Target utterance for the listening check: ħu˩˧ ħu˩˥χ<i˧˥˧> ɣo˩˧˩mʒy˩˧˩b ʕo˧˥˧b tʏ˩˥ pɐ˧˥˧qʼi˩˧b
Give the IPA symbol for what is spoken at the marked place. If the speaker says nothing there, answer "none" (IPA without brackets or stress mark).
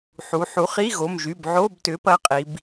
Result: i˧˥˧